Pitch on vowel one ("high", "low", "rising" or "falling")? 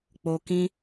low